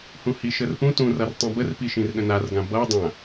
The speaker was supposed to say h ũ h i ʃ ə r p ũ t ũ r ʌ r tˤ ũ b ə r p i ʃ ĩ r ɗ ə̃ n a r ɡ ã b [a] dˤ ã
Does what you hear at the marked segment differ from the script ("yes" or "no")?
yes